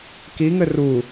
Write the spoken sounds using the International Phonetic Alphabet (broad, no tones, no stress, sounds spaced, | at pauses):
k i ŋ ɘ r u